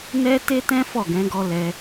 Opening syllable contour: high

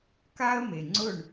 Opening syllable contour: high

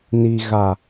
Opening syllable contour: low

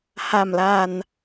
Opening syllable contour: low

